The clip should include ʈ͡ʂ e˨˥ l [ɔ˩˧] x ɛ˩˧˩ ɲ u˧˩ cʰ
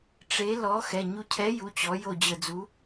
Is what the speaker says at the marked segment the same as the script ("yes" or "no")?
no